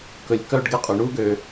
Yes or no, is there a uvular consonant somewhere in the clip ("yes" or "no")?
yes